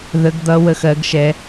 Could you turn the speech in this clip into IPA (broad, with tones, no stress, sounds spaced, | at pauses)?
ð ə˩˧ ɡ d̪ ʌ˩˧ w ə˨˩ x ɜ˩˧ ɡ ʃ ɛ˩˧